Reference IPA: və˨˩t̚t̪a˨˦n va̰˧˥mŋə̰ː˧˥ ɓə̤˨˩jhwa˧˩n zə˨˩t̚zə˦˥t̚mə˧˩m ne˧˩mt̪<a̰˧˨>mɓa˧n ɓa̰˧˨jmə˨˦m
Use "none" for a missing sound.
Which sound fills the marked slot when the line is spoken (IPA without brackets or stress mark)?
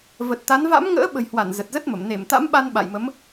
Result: a̰˧˥